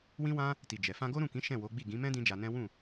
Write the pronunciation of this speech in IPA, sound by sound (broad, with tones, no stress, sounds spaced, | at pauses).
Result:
w ĩ˦ w ã˦ | t i˨ d͡ʒ ɛ˨ f ã˧ ɡ o˦ ɾ ũ˦˨ k ĩ˨˦ ʃ ɛ̃˦˨ w o˨˦ ɡ͡b i˦˨ ɡ ĩ˨˦ m ɛ̃˦ d ĩ˦ d͡ʒ a˧ n ɛ̃˦ w ũ˦˨